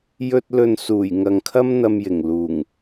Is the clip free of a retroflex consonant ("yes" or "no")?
yes